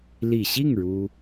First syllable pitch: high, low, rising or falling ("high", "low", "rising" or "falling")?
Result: low